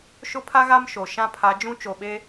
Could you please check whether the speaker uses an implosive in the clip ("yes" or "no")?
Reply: yes